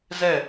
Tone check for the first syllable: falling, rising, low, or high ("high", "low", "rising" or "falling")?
falling